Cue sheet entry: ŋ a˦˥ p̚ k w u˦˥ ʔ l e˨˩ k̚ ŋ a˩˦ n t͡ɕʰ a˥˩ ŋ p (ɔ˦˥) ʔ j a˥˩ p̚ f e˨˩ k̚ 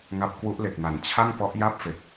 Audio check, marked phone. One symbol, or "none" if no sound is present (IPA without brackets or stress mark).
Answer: ɔ˦˥